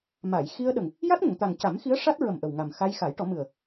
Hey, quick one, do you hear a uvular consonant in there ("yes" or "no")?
no